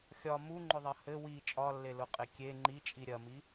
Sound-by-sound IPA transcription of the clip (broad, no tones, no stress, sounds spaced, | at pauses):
xʲ ɒ m u ŋ͡ǃ ʊ ðˤ ɐ h ɘ w i t͡ʃʼ ɒ lː e l ʊ qʼ e kʲ e ŋ͡ǃ i t͡ʃʼ i ɾʲ ɐ m i